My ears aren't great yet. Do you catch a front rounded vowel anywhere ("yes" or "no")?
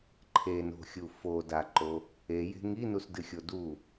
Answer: no